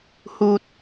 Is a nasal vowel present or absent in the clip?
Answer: absent